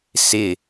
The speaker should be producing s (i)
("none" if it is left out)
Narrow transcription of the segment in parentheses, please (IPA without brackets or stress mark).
ɪ